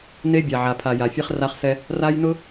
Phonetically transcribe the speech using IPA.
n e˦ bʲ a˨ ʕ a˨ pʰ a˨ j a˨ fʲ ɛ˦ χ r a˦ χ s ɛ˦ | r a˦ j n ʊ˦

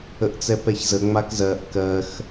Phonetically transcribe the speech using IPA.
ə ʔ t͡s ɛ p ɛ ç z ə ŋ͡m a k z ɜ ʔ k ɜ x

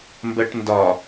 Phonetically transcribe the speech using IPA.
m b ɜ ʈ n d ɒ

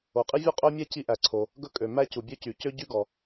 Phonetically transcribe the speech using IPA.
o˩ qʼ i˥ vʲ u˥ qʼ œ˥ mʲ ɛ˥ c i˥ ʔ æ˩ ǀʰ o˩ | ɡ ɵ˥ kʼ ø˩ m æ˥ c u˩ bʲ ø˥ c y˩ c ø˥ ɟ y˥ ɡ ɔ˩

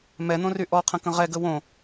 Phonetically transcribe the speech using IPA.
m ɛ n̪ õ r y ʔ ɔ qʰ ə̃ k ə̃ ʁ ɛ ɡ ə w õ

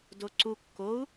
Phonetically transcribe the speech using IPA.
d o ǀ u kː o u̯

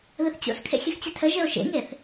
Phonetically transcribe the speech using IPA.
ð ɘ θ t͡ɕ o̰ s kʰ ḛ xʲ ɘ x t͡ɕ ɘ tʰ ə ʒ ɘ o̯ ʃ ḛ ŋ e θ

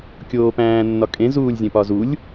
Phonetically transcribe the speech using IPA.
kʲ oː p æ̃ː nː ɒ kʼ ẽ z uː lʲ zʲ ẽ p ɒ z u lʲ

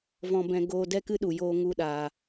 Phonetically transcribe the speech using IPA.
v ɔ̃˧ b ɛ̃˧ ɡ oː˧ d ɛ˦ k ɨ˦ ɗ u˨ j oː˧ ŋ u˧ ɗ aː˨

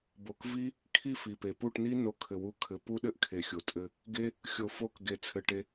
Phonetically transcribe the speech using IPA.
b o˨ k v i˦ | kʰ i˦˨ f i˨ p e˨ p u˦˨ ʈ n i˦ n o˧ kʰ ɘ˨ w u˨˦ kʰ ɘ˨˦ p u˦ ɗ ɘ˦ ʔ kʰ e˨ xʲ o˨ tʼ ɘ˧ | ɡ e˧ | xʲ o˨ f o˧ k ɡ e˨ t͡sʰ ɘ˨ ʈ e˧

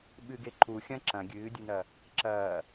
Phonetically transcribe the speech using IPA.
ɓ ɨ ɡ e ǃ u xʲ ɐ̃ ǁ ɐ̃ ɡʲ ɨː dʲ ɨ n ɐ | ǁ ɐː

